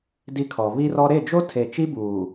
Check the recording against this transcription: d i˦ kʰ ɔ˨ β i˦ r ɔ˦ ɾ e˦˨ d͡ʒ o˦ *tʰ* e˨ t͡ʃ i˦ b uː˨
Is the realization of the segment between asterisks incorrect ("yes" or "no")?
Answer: no